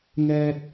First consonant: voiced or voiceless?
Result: voiced